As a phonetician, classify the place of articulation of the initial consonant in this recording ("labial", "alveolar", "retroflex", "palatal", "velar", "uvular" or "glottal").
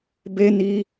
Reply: labial